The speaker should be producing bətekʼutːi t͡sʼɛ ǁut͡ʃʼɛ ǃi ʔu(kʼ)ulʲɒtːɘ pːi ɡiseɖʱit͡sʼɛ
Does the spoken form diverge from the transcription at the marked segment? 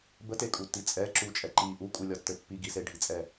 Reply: no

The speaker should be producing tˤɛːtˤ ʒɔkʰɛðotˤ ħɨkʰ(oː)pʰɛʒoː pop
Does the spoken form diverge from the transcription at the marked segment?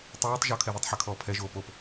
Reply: yes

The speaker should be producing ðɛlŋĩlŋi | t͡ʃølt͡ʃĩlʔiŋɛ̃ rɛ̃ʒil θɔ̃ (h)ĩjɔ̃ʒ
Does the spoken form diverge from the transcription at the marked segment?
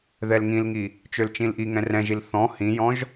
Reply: no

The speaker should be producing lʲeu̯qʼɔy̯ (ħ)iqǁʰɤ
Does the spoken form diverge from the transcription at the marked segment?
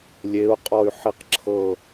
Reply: no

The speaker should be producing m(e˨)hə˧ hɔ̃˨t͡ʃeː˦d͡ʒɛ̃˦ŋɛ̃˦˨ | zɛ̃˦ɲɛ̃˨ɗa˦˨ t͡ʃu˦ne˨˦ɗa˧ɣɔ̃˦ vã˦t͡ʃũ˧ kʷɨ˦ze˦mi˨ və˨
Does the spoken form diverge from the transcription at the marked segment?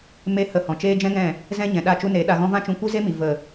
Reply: yes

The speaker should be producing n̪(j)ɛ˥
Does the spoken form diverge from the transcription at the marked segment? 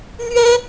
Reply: yes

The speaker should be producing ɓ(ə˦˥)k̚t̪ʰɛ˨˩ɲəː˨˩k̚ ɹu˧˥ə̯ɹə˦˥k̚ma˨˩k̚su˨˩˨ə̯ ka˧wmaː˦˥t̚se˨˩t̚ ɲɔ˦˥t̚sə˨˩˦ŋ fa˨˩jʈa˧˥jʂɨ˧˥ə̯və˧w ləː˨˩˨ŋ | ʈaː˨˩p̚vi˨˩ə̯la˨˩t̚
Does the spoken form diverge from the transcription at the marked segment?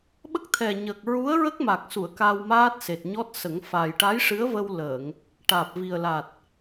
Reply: no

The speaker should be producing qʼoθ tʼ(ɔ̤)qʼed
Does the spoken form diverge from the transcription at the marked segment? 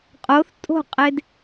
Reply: yes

